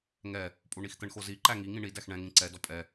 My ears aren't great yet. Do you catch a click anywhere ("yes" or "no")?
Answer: yes